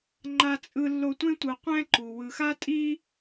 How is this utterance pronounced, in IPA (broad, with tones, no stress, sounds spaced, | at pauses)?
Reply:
ŋ͡ǃ a˨ t͡sʼ ɯ˨ lː o˨ tʷ ẽ˦ tʷ ɯ˩ qʷ ɛ̃˥ ǃ u˩ w ɯ˩ x a˦ tʼ i˦